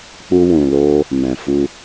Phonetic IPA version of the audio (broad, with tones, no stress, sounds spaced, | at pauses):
k͡p u˦ w ũ˧ l o˦ | m ɛ̃˨ f u˧